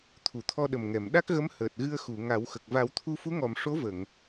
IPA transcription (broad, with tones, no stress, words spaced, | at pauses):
t̪ʰu˨˩˨t̪ʰɔ˧ɗə˨˩mŋɛ˨˩˨m ɗa˦˥k̚ɣə˧˥m həː˨˩t̚ɣɨ˧ə̯xu˨˩˨ ŋa˨˩˦wxə˨˩k̚ va˨˩˦wt̪ʰu˧fu˧˥ŋɔ˨˩˨m ʂo˧˥və˨˩˨ŋ